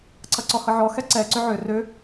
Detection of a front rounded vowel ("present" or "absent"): present